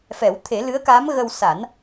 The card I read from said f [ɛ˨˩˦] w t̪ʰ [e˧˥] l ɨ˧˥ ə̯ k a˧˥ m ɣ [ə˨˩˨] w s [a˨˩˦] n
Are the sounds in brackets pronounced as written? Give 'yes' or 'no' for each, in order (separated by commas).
yes, no, no, yes